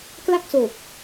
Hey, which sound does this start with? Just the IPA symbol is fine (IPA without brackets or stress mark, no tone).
k